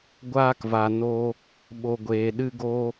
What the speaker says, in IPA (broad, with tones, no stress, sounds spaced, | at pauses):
ɡʷ aː˧ k v a˨ n o˧ | ɓ o˨ ɡʷ eː˨ ɗ ɨ˧ ɡ o˧